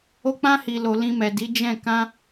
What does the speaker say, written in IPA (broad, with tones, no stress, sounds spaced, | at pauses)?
o˧ k͡p ã˧ h i˨ l o˨ l ĩ˧ m ɛ˨ d i˨˦ d͡ʒ ɛ̃˦˨ k ã˧